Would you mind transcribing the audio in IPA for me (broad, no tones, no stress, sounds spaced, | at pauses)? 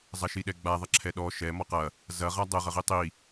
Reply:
zˤ ɐ ʃ i ɗ ɛ ɡ͡b a ðˤ ɐ ǁʰ ɛ ɗ ɔ ʃ ɛ m ɔ q ɐ | z ɐ ʁ a dˤ ə ʁ ə ʁ i tˤ i